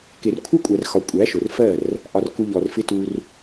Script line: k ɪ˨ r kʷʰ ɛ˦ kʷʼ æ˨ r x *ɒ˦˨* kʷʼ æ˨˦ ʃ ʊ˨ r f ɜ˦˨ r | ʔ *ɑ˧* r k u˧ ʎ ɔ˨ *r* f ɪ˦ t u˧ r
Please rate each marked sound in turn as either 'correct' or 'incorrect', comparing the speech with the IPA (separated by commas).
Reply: incorrect, incorrect, correct